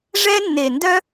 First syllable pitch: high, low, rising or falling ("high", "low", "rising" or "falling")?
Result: high